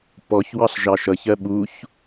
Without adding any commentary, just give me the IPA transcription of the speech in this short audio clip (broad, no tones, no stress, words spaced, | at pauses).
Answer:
pɔçwɑɬ ʒɑʃʌç ɜɓuç